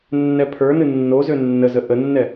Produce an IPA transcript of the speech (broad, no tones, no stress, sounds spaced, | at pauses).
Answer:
nː ɛ pʰ ə˞ n ɨ nː o z ø nː ə z ə ʔ ə nː ɛ